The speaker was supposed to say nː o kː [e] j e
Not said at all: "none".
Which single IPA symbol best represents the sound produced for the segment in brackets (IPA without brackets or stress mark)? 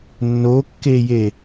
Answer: e